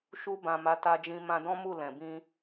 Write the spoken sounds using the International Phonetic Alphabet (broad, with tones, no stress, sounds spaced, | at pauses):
ʃ u˧ b ã˨ m a˨˦ t a˧ d͡ʒ ĩ˧ m ã˧ d ɔ̃˦ m u˦˨ l ɛ̃˨ b ĩ˧